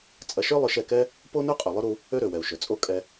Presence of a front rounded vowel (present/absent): present